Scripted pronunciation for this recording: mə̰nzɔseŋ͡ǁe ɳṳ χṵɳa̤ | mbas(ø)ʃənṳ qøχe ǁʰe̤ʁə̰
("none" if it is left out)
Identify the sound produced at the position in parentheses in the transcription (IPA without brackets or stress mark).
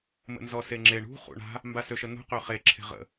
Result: ø